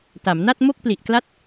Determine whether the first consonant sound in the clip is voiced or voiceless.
voiceless